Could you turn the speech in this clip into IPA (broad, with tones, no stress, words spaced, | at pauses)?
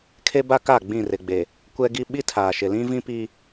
kʰe˦ba˦ka˦˨ ɡ͡bĩ˦˨rɪ˨ɡ͡be˨ | kʷɛ˦ɡi˦ ɓi˦tʰaː˨ʃɪ˨lĩ˦ vĩ˦pi˦